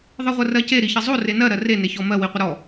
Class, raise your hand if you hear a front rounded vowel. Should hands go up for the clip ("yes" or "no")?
no